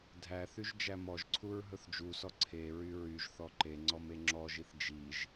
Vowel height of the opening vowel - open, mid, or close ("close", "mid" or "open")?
open